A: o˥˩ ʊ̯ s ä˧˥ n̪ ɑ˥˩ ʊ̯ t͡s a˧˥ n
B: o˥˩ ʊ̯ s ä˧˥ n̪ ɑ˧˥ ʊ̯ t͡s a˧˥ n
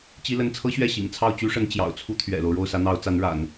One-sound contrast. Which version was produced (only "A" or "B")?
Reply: B